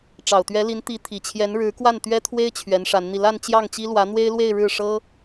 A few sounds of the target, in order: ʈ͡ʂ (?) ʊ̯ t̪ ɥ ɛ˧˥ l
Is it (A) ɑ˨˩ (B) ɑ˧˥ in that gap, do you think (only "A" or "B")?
A